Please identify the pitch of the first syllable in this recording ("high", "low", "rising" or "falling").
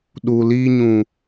low